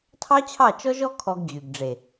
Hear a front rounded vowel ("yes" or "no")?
yes